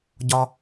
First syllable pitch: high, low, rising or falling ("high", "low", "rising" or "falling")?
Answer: high